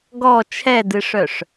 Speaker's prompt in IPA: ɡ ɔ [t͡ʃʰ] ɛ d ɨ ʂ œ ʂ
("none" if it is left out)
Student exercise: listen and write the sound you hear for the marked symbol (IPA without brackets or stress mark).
t͡ʃʰ